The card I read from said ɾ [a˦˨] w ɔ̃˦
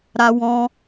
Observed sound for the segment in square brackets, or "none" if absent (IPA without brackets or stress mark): a˦